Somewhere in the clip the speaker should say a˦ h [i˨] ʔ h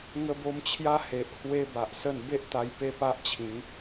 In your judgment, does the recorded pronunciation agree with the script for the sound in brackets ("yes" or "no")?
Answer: no